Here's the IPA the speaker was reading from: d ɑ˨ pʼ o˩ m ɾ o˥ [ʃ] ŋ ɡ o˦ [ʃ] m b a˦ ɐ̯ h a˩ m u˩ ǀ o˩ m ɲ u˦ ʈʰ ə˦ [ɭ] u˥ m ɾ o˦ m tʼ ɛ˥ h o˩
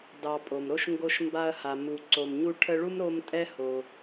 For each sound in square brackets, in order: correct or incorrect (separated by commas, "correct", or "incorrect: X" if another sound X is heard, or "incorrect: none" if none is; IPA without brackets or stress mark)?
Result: correct, correct, correct